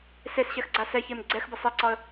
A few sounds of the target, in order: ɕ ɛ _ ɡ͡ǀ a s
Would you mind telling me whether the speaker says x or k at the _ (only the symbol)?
x